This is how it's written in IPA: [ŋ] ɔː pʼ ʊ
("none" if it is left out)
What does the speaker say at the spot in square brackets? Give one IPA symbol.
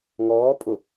ŋ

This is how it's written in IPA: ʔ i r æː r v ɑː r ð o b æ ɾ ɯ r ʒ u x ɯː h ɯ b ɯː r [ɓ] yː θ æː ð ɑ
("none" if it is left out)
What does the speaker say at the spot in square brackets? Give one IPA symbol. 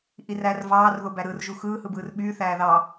ɓ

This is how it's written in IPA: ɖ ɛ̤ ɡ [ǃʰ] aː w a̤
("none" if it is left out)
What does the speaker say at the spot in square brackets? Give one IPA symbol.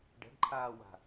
ǃʰ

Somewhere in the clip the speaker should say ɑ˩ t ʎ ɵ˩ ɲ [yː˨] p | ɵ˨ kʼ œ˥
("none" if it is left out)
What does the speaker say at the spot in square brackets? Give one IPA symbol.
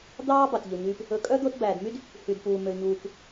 yː˨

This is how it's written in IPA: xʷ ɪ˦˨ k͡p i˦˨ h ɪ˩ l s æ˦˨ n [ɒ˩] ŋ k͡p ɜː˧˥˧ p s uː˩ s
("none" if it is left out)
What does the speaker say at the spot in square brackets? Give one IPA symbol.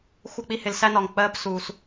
ɒ˩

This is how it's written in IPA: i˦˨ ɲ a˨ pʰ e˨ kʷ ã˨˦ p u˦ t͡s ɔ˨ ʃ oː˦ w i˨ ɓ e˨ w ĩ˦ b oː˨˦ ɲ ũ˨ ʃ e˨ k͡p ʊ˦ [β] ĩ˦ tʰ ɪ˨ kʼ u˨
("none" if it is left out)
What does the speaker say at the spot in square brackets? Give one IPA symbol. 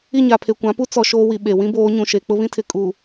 β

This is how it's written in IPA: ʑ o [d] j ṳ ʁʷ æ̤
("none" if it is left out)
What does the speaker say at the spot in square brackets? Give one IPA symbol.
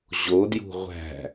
d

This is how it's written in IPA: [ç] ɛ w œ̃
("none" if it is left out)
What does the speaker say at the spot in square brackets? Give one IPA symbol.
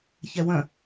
ç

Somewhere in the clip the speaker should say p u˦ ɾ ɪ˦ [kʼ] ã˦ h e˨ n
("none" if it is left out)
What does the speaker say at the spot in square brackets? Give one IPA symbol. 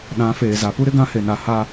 ɡ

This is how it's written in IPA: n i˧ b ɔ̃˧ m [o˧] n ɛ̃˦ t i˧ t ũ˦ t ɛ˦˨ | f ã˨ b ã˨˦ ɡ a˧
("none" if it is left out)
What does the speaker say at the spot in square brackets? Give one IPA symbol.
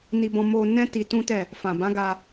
o˧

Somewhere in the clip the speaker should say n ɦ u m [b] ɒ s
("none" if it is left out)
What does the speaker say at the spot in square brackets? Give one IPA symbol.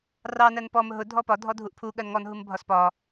bʱ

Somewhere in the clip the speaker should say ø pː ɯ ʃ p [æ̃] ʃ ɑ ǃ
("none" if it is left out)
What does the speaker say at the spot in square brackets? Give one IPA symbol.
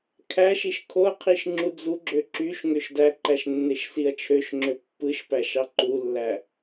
æ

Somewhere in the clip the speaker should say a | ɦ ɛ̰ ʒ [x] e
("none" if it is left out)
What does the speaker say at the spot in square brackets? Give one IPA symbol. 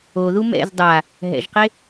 q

